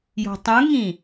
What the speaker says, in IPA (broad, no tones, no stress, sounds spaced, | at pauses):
j ɔ̤ tˤ ũ ŋ ĩ